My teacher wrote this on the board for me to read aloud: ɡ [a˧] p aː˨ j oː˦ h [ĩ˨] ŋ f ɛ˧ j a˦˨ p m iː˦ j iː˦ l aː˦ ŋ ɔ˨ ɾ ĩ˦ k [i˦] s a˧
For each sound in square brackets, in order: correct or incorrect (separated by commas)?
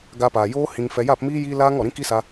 correct, incorrect, correct